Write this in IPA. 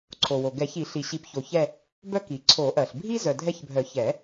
ǀʰ o˩ w o˩ ɡ ɛ˨˩˦ ç i˨˩˦ ɬ i˩ ɕ i˨˩˦ p ç o˩ ç ɛ˦˨ | b œ˦ k i˩ ǀʰ o˨˩˦ ʔ ɜ˩ ɬ bʱ i˦ z œ˩ dʱ ɛ˦˨ ç bʱ œ˨˩˦ ç ɛ˨˩˦

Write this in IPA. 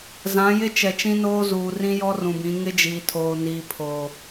z ã˨˦ j ɪ˦ t͡ʃ ɛ˨ t͡ʃ ĩ˦ n oː˦ z uː˨ r ĩ˦ j ɔ˦ r ũ˨ b ĩ˨˦ ŋ ɪ˦ d͡ʒ iː˨ tʰ oː˨ n iː˨ pʰ o˨

